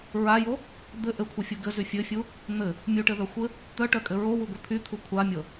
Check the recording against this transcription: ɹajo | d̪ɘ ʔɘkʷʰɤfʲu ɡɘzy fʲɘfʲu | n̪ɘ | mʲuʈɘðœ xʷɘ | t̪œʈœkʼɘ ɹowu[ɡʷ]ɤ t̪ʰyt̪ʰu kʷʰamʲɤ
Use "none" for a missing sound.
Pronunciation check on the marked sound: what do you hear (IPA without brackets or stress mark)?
ɡʷ